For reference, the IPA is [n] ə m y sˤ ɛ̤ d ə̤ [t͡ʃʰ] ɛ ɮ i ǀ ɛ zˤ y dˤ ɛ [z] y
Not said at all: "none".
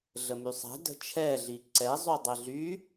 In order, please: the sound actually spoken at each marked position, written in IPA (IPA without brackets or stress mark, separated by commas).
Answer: ɮ, t͡ʃʰ, ɮ